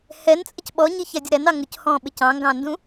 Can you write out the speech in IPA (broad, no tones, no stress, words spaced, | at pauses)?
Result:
hɛn t͡sʼəcɓɔɲi çædʲəɾænɑ ŋʊchɔ̃ɓɪc ɑ̃ŋɡɑ̃ndũ